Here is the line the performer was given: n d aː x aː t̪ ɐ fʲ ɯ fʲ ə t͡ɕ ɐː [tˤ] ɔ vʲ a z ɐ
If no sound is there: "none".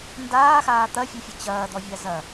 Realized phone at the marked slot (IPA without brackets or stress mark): d̪